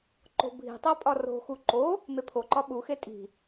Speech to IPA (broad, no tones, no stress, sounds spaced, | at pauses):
ǃ o̤ bʱ i̤ tˤ æ pʼ ɒ r o̤ x u ǃ o | m e pʰ o ǃ ɒ ɓ u x e tʼ i̤